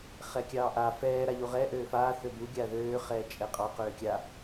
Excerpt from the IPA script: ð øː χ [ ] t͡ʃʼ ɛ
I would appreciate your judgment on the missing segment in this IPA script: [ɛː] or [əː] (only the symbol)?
ɛː